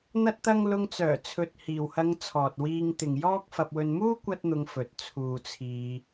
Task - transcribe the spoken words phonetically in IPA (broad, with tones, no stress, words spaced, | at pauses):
n̪ɐ˥t̚t̪ɐ˥ŋ lʊ˧ŋt͡sœː˨˩t͡sʰɵ˨t̚ hiː˨whɐ˧ŋ t͡sʰɔː˨t̚wiː˧ŋt̪ɪ˨ŋ jɔː˥k̚ fɐ˧p̚wɵ˧n muː˥ kʷɐ˥t̚n̪ʊ˧ŋfɵ˨t̚ t͡sʰuː˨ t͡sʰiː˧